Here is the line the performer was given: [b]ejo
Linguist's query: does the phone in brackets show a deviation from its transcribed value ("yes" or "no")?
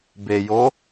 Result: no